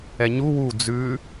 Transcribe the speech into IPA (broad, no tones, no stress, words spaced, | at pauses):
ɛɲu wu d͡zʉ